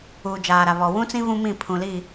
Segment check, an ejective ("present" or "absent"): absent